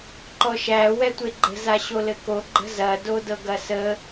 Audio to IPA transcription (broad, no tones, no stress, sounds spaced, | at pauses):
ǃ ɔ ʃ æ w ɛ tʷ e ɡ͡ǃ ə̤ z a ɕ o l ɘ k o ɡ͡ǃ ə̤ z ɐ d o d ɤ ɡ ɐ s ə